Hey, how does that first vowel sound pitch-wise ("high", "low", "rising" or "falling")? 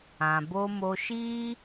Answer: low